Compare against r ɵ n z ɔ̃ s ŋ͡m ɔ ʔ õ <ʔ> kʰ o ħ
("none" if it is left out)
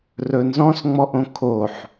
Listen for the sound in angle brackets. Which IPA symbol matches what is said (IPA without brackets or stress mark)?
none